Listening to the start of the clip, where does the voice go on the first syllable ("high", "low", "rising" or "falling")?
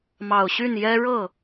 low